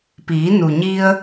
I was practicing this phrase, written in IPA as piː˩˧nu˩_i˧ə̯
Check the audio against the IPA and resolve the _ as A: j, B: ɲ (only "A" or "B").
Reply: B